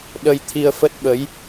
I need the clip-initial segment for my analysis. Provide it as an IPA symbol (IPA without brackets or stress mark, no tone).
ɗ